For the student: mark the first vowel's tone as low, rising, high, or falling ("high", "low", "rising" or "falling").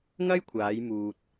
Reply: high